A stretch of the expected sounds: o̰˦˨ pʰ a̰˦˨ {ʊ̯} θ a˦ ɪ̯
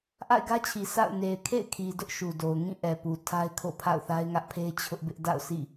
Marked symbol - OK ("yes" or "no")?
yes